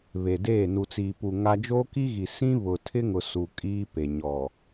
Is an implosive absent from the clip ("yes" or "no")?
yes